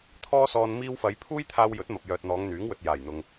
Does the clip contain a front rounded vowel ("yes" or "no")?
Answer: yes